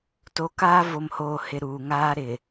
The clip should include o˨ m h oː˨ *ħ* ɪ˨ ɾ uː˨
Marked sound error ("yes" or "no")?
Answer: yes